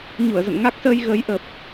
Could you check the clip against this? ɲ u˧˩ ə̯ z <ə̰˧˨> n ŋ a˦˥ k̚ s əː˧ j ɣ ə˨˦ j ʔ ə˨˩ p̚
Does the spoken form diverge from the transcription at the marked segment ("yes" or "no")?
no